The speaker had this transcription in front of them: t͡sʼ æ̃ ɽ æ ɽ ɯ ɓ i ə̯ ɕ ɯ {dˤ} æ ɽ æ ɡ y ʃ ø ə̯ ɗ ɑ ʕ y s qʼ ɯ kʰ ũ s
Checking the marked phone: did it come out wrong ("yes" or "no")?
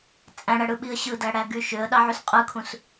yes